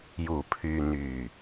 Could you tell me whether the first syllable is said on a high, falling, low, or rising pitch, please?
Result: low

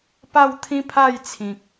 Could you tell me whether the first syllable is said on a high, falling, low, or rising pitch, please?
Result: falling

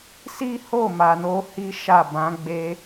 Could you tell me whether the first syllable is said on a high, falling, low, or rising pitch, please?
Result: high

